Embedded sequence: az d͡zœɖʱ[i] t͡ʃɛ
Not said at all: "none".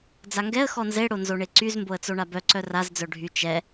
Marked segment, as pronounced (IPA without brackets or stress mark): y